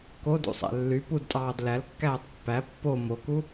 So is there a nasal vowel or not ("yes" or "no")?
no